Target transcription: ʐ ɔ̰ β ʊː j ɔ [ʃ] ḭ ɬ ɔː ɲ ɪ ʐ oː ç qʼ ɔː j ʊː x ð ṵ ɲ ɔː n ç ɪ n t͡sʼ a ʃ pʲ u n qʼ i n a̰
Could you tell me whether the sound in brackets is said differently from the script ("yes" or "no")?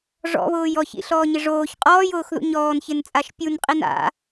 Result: yes